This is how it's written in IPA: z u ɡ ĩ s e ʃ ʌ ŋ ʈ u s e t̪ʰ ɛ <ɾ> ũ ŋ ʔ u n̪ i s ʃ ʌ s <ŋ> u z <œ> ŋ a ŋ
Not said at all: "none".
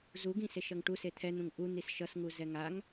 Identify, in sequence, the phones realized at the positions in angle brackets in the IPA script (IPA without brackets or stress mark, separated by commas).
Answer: n̪, ŋ, ɛ